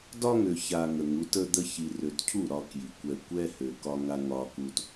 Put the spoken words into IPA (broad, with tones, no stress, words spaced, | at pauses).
dɒ˦ŋø˨ça˨ ŋə˨ŋu˨˦tə˦d̪ə˦ çi˨rø˨tcʰu˦˨ ɾɒ˦kji˨kʷɛ˦ kʷɛ˦hø˨ kɒ˦ŋa˦ ŋɒ˦ku˦t